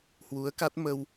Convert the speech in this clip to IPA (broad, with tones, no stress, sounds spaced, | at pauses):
h w u˨˦ ə̯ k a˦˥ t̚ m ə˧ w